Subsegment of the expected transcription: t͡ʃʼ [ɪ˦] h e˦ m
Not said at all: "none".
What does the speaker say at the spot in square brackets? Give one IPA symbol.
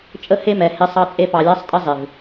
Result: ə˦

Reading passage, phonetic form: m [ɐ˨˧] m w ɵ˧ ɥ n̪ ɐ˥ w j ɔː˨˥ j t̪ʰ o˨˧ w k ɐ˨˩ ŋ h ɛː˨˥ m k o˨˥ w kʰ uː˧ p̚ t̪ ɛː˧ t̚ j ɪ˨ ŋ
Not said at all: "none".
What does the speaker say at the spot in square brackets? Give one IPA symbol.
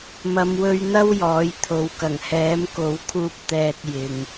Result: ɐ˨˧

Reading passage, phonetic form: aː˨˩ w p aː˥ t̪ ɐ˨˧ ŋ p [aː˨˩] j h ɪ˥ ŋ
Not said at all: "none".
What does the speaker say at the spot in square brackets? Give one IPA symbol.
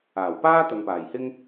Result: aː˨˩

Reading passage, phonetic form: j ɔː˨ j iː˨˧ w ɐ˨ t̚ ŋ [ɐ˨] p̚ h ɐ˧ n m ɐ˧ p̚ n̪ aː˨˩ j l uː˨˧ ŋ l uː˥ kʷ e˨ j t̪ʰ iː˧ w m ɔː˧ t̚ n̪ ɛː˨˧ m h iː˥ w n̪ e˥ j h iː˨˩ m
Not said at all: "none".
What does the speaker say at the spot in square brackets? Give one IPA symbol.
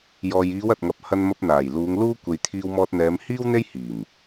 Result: ɐ˨˥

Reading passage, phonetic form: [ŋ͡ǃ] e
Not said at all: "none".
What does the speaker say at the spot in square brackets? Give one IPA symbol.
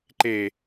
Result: ǃ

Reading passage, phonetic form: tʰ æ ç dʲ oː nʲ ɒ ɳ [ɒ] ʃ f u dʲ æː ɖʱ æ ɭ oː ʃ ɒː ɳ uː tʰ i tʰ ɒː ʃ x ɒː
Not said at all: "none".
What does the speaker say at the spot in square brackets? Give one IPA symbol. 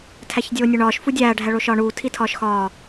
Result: ɒː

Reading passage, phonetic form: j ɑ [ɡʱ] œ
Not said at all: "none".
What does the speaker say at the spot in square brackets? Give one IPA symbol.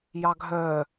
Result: ɡʱ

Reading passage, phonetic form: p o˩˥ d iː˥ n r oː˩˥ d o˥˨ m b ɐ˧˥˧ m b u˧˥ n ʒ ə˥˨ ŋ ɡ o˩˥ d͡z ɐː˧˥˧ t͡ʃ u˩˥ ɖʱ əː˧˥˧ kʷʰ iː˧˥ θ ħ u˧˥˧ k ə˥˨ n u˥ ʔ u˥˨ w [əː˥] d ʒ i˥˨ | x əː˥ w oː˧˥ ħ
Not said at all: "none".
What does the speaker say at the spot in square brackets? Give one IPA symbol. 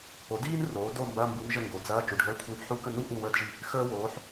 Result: əː˥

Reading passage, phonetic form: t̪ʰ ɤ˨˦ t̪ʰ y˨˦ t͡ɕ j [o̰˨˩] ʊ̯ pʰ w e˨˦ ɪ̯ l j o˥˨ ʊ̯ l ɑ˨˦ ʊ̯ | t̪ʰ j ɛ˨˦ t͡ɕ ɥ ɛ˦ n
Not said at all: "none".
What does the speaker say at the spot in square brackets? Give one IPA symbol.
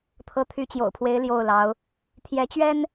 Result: o̰˨˩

